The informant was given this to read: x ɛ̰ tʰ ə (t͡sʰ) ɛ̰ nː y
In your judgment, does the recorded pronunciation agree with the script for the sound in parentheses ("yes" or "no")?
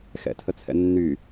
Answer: yes